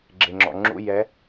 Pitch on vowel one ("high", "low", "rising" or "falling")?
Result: low